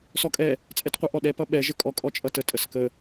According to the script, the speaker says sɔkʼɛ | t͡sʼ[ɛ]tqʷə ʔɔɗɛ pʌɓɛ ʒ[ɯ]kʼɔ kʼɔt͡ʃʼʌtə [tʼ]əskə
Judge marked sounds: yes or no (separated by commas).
yes, no, yes